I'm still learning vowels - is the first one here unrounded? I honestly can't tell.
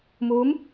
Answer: no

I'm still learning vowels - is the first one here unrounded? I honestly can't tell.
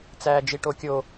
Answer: yes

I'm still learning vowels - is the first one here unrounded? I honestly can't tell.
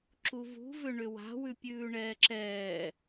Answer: no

